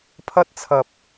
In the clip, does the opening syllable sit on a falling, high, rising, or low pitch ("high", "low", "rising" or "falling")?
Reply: high